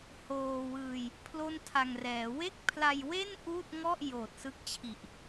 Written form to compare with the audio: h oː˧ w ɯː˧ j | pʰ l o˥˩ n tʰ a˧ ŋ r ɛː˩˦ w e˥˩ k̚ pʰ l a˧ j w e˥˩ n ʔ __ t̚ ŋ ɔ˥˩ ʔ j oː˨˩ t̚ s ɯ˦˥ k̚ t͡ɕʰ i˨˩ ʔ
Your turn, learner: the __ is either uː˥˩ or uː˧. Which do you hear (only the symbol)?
uː˥˩